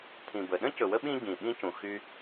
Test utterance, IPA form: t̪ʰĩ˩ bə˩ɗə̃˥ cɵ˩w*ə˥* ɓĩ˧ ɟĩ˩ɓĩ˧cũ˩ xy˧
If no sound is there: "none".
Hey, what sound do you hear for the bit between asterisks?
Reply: ə˥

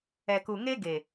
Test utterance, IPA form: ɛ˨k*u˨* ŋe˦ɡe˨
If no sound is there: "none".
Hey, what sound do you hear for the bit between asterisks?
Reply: u˨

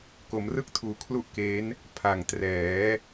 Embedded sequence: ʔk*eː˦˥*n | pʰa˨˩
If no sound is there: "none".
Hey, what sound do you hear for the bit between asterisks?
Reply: eː˦˥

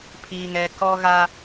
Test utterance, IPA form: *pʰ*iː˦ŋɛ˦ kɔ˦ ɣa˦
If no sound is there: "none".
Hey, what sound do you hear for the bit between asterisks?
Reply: pʰ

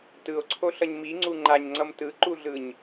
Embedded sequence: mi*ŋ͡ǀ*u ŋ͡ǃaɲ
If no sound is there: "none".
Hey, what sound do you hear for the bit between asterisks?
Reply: ŋ͡ǀ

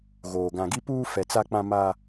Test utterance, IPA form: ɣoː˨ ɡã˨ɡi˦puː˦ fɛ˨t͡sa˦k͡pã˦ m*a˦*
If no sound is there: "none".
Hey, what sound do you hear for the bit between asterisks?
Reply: a˦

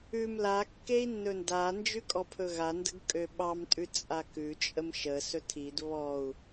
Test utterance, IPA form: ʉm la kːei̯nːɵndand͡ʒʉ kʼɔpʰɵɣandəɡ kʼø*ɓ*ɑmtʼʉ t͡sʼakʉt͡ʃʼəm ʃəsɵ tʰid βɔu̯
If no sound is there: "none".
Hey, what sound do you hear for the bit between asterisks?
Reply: ɓ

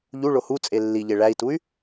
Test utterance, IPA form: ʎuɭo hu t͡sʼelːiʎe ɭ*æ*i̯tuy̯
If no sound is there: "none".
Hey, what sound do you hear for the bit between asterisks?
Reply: æ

